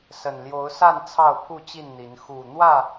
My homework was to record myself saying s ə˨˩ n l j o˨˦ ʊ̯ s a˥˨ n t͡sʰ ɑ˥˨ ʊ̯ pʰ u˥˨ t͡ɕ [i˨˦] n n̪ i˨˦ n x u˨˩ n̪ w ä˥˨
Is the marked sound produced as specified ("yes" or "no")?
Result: no